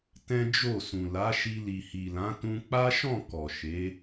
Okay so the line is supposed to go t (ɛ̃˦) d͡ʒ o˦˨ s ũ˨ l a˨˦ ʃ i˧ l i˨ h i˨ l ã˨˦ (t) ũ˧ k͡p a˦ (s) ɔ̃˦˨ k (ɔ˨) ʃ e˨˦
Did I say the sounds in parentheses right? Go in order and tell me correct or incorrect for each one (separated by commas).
correct, correct, incorrect, correct